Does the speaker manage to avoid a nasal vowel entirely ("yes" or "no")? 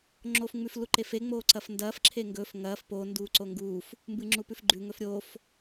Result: yes